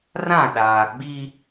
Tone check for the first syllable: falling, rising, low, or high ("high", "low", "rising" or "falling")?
falling